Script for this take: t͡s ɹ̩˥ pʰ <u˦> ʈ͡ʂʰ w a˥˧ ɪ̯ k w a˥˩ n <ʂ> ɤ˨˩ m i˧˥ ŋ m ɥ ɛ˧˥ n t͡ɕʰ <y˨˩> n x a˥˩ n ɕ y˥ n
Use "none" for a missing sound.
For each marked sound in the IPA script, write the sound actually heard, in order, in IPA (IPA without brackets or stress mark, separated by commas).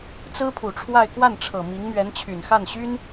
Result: u˨˩, ʈ͡ʂʰ, y˨˩